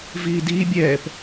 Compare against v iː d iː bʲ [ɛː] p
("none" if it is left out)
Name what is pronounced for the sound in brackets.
ɛː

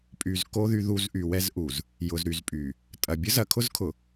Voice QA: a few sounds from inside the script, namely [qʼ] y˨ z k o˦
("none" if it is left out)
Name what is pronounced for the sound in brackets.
pʼ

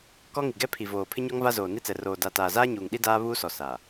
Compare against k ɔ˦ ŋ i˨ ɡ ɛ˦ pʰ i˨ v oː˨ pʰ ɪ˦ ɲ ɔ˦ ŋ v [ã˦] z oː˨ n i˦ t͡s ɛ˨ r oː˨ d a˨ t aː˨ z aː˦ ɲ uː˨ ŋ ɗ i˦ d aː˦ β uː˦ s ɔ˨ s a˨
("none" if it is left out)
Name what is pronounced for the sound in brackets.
a˦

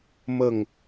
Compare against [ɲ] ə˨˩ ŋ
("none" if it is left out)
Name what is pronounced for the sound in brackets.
m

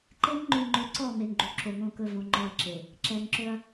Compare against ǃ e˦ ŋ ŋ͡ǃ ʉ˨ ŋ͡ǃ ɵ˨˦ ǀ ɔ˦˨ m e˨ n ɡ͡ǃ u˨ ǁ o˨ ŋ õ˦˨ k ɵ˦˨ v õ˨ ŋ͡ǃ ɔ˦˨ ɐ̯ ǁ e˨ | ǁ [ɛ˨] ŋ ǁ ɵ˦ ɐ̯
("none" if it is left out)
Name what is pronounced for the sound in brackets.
ɛ˨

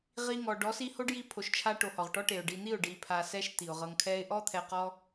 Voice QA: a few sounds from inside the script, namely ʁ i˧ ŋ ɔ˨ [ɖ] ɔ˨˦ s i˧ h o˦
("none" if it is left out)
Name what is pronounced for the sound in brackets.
ɖ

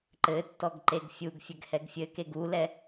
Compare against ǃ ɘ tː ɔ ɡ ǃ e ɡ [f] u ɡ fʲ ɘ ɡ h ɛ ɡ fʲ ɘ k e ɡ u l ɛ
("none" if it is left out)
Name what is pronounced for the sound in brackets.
fʲ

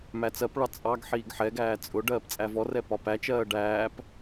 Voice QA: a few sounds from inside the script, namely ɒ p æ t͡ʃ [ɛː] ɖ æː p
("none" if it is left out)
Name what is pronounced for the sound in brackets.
ɜː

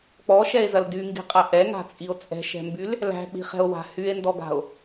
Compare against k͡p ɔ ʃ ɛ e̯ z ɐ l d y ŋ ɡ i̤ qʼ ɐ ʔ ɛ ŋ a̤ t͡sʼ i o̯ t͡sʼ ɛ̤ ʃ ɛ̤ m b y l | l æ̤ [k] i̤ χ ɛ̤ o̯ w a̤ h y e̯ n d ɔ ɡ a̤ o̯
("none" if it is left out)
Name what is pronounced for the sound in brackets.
k͡p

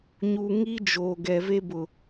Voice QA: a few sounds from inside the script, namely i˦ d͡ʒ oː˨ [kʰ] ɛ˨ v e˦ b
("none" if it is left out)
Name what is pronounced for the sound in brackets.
ɡ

